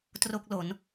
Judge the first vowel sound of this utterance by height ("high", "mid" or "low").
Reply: mid